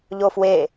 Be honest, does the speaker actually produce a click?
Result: no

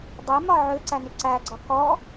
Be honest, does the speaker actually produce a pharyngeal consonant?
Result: yes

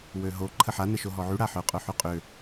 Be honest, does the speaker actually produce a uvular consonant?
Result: yes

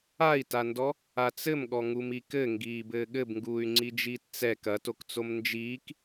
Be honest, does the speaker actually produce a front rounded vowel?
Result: yes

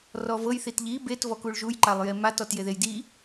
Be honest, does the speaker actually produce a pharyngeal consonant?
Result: no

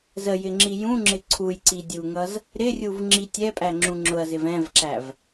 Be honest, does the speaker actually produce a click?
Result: yes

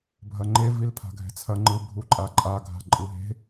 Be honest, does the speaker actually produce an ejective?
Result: yes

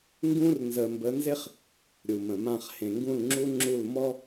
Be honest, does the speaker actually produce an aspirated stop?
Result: no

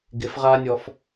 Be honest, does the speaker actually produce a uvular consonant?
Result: yes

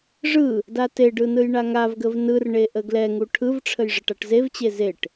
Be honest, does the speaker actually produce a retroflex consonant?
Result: yes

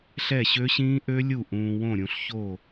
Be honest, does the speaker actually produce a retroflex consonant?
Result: no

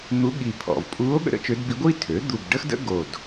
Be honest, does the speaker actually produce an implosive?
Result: yes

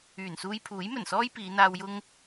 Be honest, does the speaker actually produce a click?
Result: no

